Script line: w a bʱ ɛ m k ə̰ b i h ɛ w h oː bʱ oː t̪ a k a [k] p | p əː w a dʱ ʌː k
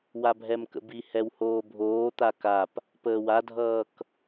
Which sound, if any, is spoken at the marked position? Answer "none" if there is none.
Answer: none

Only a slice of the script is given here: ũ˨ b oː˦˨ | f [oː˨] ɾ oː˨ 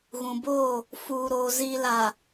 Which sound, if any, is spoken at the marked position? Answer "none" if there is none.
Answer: uː˨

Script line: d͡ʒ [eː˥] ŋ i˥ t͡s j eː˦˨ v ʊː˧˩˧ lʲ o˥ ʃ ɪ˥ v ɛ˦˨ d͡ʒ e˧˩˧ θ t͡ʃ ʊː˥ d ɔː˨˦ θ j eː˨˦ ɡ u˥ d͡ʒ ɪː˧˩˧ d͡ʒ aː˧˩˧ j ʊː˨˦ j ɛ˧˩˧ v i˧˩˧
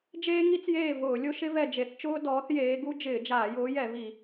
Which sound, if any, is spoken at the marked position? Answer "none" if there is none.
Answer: eː˥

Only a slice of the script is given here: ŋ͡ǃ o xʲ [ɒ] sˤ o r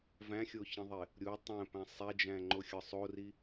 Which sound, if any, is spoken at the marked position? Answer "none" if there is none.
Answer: ɒ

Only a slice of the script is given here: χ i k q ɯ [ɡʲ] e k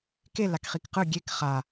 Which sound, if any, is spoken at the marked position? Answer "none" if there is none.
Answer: ɡʲ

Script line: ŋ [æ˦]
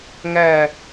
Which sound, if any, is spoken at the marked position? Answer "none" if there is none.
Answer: æ˦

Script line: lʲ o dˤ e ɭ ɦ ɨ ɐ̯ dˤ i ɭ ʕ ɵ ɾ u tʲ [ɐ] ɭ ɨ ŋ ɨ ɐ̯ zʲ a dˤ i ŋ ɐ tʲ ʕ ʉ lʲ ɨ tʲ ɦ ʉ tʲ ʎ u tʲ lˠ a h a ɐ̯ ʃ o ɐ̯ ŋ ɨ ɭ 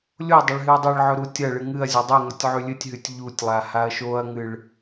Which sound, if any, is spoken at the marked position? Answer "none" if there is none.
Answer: ɐ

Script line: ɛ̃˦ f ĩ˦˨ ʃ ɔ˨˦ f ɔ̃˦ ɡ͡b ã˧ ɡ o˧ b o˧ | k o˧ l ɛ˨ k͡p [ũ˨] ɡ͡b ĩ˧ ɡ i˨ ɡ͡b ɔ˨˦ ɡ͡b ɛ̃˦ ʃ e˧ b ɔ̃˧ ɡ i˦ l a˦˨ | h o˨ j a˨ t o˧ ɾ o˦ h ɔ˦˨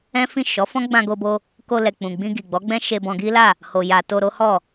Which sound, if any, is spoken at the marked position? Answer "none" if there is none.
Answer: ũ˨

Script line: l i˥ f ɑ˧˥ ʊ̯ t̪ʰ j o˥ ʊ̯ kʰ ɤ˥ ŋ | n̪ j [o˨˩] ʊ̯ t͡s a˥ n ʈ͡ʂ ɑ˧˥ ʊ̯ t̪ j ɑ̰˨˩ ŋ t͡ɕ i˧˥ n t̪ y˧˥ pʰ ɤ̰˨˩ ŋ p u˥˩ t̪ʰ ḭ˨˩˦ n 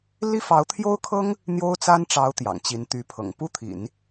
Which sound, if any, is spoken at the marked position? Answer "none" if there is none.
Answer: o˥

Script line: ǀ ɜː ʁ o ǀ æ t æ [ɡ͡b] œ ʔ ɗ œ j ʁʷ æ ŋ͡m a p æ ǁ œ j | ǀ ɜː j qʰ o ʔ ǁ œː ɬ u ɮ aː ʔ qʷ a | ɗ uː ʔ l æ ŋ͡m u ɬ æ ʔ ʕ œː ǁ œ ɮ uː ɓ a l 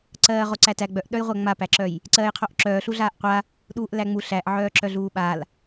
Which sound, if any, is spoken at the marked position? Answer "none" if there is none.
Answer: ɡ͡b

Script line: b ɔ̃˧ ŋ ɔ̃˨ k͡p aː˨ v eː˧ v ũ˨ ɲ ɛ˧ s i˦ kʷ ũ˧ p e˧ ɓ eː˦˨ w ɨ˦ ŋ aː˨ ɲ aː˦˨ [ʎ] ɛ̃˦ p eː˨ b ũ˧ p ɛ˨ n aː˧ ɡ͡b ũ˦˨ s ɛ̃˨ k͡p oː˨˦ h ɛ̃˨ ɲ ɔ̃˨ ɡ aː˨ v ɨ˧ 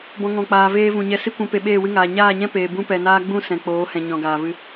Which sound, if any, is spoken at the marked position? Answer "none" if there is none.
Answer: ɲ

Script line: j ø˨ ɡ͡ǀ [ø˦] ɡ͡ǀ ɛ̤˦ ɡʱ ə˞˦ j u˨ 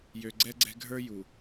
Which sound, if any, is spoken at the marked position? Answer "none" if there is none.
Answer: ɛ˦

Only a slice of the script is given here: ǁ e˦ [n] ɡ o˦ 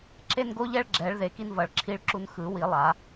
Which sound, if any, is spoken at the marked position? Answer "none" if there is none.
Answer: n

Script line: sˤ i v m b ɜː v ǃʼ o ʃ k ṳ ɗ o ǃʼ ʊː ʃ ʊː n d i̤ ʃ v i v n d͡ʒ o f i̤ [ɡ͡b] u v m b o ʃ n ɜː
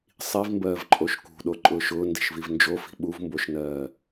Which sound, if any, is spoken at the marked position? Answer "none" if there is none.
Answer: ɓ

